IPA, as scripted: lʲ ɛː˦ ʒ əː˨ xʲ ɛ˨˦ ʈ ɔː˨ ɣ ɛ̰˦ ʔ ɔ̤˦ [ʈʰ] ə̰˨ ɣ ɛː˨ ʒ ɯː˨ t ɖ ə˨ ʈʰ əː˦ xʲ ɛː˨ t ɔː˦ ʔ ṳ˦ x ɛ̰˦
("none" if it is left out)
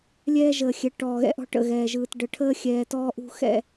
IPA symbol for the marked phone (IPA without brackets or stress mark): ʈ